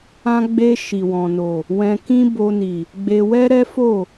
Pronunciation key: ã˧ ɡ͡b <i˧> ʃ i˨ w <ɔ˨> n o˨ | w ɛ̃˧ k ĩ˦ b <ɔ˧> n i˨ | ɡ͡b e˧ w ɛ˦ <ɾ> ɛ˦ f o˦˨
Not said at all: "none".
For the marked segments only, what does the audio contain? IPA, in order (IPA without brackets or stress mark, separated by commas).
e˧, ɔ̃˨, o˧, ɾ